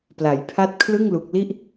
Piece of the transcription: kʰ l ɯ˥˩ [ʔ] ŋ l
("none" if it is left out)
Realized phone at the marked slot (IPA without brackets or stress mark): none